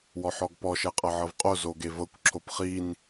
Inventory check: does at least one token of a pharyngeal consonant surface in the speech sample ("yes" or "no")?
yes